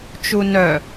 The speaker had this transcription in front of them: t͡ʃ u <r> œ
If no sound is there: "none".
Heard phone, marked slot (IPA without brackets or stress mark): n